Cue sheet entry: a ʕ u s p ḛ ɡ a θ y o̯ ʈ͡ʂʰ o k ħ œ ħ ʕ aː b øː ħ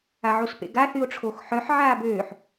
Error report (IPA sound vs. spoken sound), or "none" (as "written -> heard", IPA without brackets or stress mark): k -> x